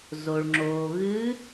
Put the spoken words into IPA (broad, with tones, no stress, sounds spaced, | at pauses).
z o˩ ɭ ŋ͡ǁ oː˩ ɣ ɨː˧˥